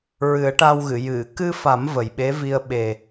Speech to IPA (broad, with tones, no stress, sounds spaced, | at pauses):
ɹ ɨ˨˩˦ ə̯ ʈ a˧ w ɣ ɨ˨˩˨ j ɨ˨˩˨ k ɨ˧ f a˨˩˦ m v ə˨˩ j ɓ e˧˥ v i˧ ə̯ ɓ e˨˩